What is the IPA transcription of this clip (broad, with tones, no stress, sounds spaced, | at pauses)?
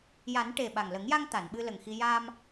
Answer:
j a˨˩˦ n ʈ e˨˩ ɓ a˨˩ ŋ l ə˨˩˦ ŋ j a˧ ŋ t̪ a˨˩˨ n ɓ ɨ˧ l ə˨˩ ŋ x i˧ j a˧ m